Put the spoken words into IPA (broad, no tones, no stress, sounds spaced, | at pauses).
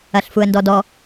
ɐ ɬ f u ə̯ n d ɔ d ɔ